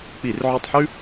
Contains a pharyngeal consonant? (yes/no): yes